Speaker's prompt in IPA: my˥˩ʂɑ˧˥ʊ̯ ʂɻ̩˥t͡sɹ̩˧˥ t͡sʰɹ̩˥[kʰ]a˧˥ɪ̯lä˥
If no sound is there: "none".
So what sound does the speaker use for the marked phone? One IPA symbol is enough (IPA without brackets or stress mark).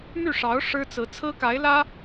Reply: k